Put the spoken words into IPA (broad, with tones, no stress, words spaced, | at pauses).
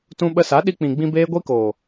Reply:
tũ˧ɓə˧sa˨˦ ɗi˧k͡pĩ˨ɡ͡bĩ˧ beː˦ɡʷi˦koː˨